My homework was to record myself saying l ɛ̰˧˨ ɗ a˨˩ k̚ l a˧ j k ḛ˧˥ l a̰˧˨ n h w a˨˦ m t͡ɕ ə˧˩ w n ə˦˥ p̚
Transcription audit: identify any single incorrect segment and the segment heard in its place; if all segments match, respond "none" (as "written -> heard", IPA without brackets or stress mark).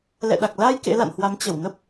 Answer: none